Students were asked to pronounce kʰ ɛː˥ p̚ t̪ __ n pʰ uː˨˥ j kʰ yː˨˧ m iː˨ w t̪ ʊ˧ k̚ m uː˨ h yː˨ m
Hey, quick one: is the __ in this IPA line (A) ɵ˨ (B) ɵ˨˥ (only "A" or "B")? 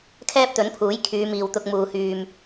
B